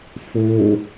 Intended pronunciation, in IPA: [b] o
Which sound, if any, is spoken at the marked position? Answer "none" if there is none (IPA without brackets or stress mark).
f